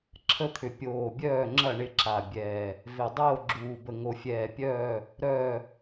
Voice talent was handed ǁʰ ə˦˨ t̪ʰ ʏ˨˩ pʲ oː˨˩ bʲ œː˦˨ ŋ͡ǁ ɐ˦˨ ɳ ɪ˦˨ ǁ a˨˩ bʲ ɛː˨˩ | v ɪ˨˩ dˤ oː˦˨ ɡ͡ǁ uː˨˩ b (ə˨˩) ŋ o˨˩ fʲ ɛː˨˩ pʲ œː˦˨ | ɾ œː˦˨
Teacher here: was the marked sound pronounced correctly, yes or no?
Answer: yes